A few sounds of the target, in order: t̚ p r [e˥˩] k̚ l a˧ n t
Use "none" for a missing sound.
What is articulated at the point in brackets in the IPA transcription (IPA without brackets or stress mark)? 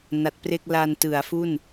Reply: e˥˩